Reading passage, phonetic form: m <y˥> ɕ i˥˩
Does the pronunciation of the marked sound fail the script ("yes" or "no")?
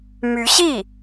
yes